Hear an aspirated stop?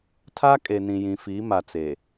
yes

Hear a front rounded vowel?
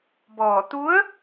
no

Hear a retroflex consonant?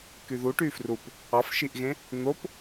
yes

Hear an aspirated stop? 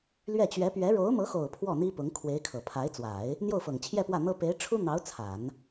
yes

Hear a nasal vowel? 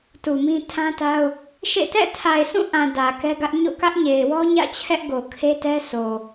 yes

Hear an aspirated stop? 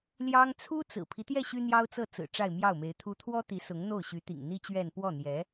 yes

